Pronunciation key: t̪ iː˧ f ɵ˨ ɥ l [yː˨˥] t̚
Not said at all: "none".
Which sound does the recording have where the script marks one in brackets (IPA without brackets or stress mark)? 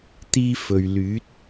yː˨˥